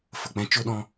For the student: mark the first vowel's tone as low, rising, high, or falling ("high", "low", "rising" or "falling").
low